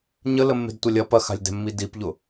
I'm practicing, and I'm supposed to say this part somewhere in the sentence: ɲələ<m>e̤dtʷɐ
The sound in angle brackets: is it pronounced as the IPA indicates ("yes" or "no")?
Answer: no